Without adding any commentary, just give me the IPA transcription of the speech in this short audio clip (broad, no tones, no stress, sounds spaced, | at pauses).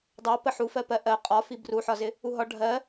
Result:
dˤ ɑ p ə ħ u f ɜ p ɜ ʔ ɜ qʼ ɒ f i b r u ħ ɒ z ɪ | u ɦ ɒ ɖʱ ɜ